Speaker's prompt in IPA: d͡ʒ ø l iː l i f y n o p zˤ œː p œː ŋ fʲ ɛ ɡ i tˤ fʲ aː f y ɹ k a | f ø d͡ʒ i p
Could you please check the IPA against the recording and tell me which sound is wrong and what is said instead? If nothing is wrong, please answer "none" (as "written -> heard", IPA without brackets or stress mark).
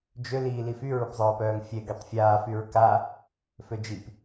n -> ɹ